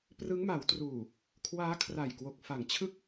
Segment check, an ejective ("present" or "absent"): absent